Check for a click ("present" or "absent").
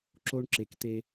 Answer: present